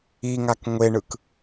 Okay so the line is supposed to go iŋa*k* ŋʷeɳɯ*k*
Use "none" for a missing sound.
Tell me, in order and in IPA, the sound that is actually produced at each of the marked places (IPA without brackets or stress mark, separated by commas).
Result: k, k